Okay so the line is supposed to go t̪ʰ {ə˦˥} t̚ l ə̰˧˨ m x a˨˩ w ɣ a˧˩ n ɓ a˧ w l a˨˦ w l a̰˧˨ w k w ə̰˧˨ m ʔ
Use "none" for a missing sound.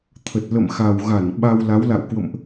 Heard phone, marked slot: ə˨˩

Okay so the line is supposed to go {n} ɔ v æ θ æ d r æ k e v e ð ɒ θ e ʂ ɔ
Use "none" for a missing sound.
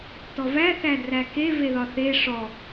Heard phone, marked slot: t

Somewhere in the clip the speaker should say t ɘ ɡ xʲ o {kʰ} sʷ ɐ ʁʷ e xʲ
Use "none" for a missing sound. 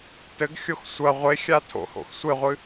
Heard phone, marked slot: x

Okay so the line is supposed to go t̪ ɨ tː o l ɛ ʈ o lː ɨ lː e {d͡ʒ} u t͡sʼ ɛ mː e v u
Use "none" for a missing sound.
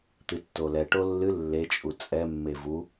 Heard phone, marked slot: t͡ʃʼ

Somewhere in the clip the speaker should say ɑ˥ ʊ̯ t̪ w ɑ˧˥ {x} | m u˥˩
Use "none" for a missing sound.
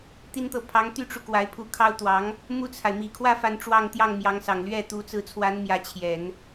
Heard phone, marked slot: ŋ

